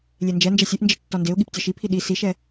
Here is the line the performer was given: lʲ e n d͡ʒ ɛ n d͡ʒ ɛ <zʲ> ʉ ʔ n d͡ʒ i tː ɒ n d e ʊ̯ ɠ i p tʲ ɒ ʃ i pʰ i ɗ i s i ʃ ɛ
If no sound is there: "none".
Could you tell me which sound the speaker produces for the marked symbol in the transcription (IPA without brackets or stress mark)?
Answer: sʲ